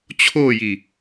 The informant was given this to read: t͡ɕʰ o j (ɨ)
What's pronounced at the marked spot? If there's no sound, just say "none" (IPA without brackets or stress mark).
i